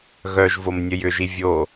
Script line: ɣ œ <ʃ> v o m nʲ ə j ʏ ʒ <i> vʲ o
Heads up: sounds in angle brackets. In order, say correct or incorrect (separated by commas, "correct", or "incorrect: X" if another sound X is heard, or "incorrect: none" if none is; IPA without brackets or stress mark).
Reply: incorrect: ʒ, correct